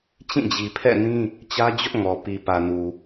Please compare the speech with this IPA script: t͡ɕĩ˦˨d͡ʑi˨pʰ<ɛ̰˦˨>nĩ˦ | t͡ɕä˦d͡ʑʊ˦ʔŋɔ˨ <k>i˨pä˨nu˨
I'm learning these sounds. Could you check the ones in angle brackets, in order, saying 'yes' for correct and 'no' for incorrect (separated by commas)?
yes, no